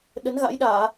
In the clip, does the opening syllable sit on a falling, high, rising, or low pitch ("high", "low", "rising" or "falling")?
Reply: rising